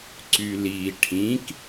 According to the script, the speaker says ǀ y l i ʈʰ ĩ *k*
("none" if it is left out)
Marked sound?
k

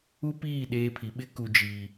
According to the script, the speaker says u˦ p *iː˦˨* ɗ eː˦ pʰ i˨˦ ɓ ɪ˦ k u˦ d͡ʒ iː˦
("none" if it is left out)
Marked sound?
iː˦˨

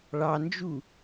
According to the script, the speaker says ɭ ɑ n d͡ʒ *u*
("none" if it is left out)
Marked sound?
u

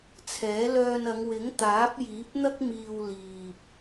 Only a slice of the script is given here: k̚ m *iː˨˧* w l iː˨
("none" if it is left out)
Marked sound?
iː˧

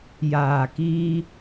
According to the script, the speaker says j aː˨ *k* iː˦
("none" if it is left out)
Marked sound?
k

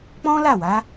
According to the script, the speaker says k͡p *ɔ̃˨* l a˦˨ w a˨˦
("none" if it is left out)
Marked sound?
ɔ̃˦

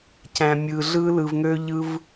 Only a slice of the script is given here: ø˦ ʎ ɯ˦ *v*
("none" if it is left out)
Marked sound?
v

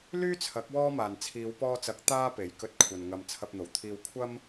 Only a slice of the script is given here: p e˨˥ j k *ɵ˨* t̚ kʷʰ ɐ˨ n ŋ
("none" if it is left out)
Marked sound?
ɵ˧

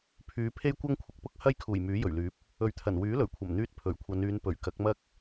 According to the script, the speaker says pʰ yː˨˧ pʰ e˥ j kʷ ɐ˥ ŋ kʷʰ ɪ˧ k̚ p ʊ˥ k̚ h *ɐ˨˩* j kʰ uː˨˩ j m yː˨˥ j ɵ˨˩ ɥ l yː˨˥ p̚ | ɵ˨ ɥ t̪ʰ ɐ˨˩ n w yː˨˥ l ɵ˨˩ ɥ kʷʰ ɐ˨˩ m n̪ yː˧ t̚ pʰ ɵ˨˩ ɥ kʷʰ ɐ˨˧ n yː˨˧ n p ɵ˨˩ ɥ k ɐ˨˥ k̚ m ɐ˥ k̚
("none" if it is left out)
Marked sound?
ɐ˥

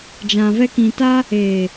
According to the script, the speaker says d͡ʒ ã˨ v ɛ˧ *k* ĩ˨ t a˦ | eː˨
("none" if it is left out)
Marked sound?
k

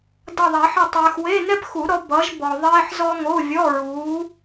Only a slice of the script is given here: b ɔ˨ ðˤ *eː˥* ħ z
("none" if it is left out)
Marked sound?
eː˥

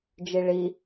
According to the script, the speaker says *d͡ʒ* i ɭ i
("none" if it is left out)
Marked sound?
d͡ʒ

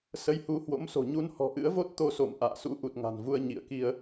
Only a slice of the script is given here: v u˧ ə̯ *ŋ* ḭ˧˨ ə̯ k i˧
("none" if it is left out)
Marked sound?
ɲ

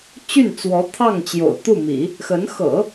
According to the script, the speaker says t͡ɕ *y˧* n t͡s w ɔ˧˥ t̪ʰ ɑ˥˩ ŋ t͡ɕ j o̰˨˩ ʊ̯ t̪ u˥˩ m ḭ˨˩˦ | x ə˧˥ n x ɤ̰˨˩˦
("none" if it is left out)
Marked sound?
y˥˩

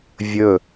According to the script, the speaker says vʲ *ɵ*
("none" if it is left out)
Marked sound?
ɵ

